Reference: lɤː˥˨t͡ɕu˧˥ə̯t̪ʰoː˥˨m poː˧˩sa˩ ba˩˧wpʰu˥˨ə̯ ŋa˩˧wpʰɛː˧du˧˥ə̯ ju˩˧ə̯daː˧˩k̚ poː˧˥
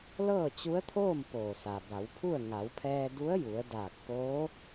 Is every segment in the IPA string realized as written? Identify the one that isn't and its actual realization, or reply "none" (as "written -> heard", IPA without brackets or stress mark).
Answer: none